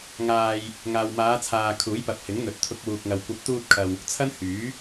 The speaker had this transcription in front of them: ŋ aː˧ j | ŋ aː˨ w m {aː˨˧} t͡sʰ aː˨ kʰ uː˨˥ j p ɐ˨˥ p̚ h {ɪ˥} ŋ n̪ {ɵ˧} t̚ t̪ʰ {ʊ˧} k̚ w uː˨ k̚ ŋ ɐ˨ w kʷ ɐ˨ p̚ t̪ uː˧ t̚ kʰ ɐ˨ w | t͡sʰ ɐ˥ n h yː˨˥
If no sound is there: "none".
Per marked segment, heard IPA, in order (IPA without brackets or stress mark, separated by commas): aː˨˧, ɪ˨˥, ɵ˨, ʊ˧